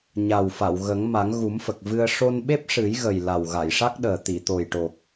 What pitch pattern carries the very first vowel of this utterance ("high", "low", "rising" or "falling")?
low